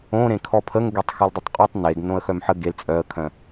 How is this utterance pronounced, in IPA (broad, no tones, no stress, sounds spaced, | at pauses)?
õ ɾ ẽ kʰ ɔ pʰ ə ŋ ɡ e tˤ x œ l dˤ ʊ tˤ qʼ œ tˤ n e ɡ n õ ə̯ x œ m ħ ə ɡ e l t͡sʼ œ ə̯ kʰ œ̃